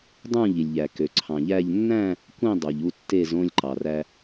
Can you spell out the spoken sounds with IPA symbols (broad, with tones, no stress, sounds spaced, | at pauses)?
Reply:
dˤ ũ˦˨ ʎ i˩ lʲ ʎ æ˩ k ø˩ ǀʰ ɑ̃˩ ʎ æ˦˨ ʎ nː æ̃˦˨ | kʷ ĩ˦˨ dˤ o˩ ʎ u˦˨ tː e˦˨ z õ˦˨ lʲ ǃ ɑ˩ r æ˩